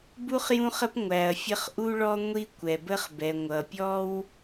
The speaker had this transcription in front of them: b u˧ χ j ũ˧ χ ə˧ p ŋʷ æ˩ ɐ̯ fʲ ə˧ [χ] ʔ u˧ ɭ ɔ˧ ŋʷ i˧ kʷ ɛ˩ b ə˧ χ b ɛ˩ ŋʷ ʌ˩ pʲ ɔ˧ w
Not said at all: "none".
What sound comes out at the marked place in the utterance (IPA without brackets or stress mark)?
χ